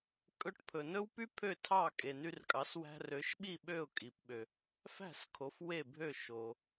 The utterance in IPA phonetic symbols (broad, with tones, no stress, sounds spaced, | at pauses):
kʼ ɵ˧ ʈ pʰ ɵ˩ n ɵ˥ w p y˥ pʰ ø˥˩ tʰ ɑ˥˩ kʼ e˩ n y˧ r kʼ ɑ˩˥ s w æ̤˧ r ø˩˥ ʃ ɓ i˥˩ ɓ ø˥˩ ʊ̯ kʼ i˩ p ɓ ø˩ | f æ̤˥˩ s kʰ o˩˥ f w e˥˩ bʱ ø˥˩ ʃ o˩